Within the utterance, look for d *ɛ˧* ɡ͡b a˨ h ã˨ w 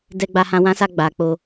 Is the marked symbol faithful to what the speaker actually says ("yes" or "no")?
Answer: no